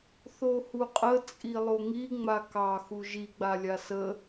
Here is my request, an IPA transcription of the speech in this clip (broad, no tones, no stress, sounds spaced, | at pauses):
θ o h u qʼ ə t͡sʼ i lˠ o ŋ i ŋ͡m a k ɑ x u ʒ i ɡ͡b a lʲ a s ə